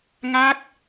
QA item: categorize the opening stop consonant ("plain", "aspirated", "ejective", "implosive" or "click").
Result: plain